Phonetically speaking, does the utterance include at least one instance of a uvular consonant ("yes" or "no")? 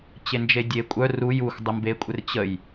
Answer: no